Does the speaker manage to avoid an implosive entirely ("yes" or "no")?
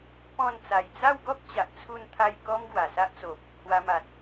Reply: yes